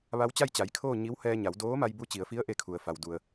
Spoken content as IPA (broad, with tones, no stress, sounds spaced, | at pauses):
ʋ a˧˥ w t͡ɕ a˥˨ j t͡ɕ a˩˧ j kʰ oː˥˨ ɲ i˧˥ w h ɛː˧ ɲ a˩˧ w d oː˧˥ m a˧ j b u˧ t͡ɕ i˩˧ ə̯ f i˧˥ ə̯ ʔ e˥˨ kʰ u˩˧ ə̯ f a˩ w d u˩ ə̯